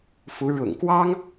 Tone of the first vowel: rising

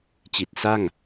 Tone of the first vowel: low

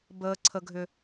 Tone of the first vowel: high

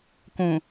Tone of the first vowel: low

